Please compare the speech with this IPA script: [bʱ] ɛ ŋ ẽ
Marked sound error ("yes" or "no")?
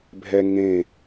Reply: no